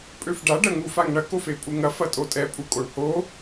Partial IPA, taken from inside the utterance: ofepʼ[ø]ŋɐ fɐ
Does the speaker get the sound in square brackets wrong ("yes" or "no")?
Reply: yes